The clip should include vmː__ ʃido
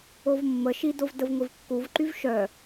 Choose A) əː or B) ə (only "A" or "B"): B